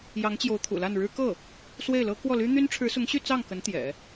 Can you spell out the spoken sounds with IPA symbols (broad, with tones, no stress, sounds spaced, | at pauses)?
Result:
j ɑ˧˥ ŋ t͡ɕ j o˧˥ ʊ̯ t̪ʰ ṵ˨˩ l a˥˩ n ɻ ɻ̩˥ k ɤ˥˩ | s w e˥˩ ɪ̯ l ɤ˥ k w ɔ˥˩ l y˥ n̪ y˥ n ʈ͡ʂʰ ɻ̩˧˥ s ʊ˧˥ ŋ ɕ y˥˧ t͡s ɑ˥˩ ŋ k ə˧˥ n t̪ j ɛ̰˨˩˦